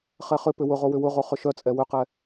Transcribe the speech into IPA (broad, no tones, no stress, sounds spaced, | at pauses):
χ ɛ χ ʏ p ʏ w ʊ ʁ o w ʏ w ʊ ʁ o χ ʏ ʃ œ t͡sʼ ɛ w ʏ q ɛ